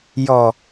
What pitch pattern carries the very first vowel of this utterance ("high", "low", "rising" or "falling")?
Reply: low